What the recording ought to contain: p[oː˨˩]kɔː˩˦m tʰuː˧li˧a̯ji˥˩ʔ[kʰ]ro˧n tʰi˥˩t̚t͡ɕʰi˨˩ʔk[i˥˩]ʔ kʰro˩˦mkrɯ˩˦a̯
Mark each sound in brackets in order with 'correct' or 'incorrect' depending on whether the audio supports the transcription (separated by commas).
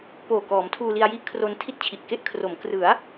correct, correct, incorrect